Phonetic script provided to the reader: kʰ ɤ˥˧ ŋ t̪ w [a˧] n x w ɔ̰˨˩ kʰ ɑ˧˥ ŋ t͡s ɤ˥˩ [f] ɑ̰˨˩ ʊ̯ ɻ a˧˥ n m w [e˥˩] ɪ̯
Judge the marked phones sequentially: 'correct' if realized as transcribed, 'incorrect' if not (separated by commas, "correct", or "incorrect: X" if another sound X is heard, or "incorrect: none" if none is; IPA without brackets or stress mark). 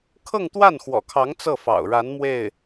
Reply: incorrect: a˥˩, correct, correct